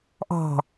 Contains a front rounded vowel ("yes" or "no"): no